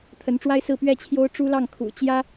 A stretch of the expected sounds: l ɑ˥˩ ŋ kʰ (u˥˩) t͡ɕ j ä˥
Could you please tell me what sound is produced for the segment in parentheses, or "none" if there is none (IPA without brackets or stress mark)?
ṵ˨˩